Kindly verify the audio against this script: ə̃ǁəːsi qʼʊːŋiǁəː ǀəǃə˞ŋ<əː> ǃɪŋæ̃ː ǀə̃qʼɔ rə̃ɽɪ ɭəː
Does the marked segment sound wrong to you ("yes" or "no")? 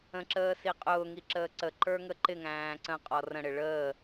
yes